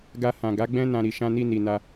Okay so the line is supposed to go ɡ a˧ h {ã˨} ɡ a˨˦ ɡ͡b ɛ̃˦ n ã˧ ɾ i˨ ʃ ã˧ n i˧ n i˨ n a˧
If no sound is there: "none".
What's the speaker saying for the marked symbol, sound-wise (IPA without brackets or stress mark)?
ã˨